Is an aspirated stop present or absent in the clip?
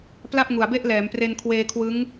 present